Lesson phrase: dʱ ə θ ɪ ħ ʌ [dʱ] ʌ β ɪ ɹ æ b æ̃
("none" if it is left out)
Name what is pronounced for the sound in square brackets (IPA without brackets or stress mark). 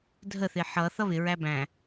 θ